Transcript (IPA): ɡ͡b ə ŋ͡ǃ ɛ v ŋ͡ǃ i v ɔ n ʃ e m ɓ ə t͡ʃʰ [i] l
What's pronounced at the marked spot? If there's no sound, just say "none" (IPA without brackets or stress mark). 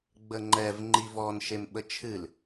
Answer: ɨ